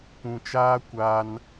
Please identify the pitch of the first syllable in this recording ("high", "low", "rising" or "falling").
low